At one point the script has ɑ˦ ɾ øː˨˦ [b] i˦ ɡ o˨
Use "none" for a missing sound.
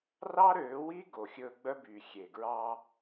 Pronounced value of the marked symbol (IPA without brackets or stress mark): w